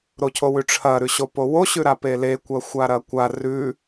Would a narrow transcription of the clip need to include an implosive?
no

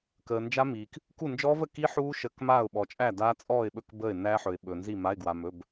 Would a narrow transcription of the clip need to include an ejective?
yes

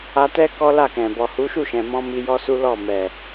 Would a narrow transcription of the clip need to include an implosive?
no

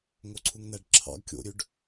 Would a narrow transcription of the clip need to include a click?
yes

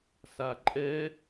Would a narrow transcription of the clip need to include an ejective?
yes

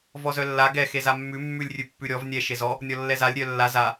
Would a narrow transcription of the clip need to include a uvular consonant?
no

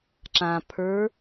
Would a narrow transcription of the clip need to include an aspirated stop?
yes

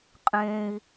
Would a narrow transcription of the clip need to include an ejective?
yes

